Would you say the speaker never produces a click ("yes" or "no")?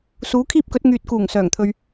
yes